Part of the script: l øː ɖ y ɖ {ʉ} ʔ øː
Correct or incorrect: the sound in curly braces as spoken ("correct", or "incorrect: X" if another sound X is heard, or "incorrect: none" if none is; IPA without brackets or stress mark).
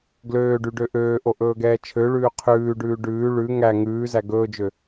incorrect: ø